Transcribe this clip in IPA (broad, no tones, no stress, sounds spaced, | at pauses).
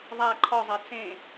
ðˤ a ǃʰ ɔ zˤ ɛ t͡s ẽ